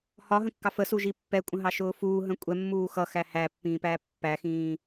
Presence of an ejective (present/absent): present